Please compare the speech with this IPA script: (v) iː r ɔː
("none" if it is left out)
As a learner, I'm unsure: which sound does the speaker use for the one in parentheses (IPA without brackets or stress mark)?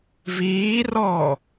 v